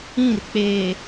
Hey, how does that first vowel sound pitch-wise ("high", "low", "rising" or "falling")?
falling